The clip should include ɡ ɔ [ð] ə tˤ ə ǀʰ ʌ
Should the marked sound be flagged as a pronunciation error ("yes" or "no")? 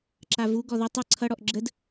no